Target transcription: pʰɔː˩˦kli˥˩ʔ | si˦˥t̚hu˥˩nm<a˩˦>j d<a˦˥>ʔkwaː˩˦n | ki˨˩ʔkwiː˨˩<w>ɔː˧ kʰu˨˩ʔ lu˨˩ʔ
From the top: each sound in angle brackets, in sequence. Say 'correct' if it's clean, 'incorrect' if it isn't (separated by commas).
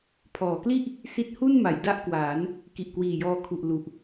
correct, incorrect, incorrect